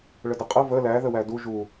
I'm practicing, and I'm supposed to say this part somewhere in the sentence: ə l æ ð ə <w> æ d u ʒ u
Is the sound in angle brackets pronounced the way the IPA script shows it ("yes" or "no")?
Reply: yes